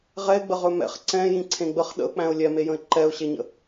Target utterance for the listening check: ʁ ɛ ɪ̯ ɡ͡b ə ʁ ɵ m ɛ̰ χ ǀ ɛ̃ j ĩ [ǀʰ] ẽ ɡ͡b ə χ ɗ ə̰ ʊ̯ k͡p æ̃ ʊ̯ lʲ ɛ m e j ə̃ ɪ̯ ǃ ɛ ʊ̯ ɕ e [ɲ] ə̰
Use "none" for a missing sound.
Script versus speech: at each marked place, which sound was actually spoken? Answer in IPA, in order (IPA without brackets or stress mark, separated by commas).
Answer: ǀʰ, ɲ